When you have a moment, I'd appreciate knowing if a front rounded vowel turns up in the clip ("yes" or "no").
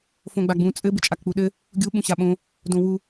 no